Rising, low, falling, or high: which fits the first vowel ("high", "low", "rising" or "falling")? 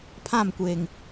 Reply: falling